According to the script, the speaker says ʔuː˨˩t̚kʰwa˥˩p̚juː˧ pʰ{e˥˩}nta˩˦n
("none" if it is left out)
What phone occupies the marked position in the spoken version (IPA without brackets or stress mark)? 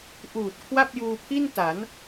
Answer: i˥˩